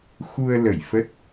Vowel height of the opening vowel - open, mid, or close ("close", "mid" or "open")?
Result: close